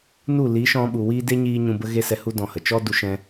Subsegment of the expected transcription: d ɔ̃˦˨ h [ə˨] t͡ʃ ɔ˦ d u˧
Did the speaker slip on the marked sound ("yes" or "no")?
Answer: no